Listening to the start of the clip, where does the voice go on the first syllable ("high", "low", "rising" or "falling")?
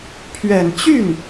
low